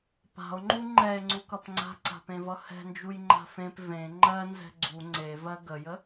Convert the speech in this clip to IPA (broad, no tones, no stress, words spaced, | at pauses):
pa̤o̯ŋ͡ǃu ŋ͡ǃɛe̯ŋ͡ǀukʌp ŋ͡ǀa̤ǀa̤pẽvʌ hɛ̤nd͡ʒujŋ͡ǃa̤ fẽp vẽ ŋ͡ǃɜnzɛ̤ ɡ͡ǀu ŋ͡ǀevɜ ɡəjə